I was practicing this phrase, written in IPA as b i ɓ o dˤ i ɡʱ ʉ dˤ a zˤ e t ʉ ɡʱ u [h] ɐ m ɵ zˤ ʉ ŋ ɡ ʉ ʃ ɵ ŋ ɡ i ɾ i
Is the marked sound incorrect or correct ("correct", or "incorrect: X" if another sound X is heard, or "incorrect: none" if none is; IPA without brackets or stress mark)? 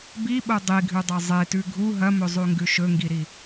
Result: incorrect: ɦ